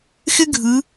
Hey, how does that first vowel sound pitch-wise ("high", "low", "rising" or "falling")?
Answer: high